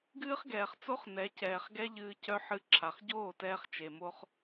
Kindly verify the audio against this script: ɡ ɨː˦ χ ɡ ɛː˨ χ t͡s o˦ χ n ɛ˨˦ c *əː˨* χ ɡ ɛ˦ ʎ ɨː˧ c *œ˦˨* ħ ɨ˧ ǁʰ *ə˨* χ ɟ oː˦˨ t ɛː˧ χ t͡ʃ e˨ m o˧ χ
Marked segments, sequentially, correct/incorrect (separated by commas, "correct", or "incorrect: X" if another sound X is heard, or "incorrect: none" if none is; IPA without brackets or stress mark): incorrect: ɛː˨, incorrect: œ˦, incorrect: a˨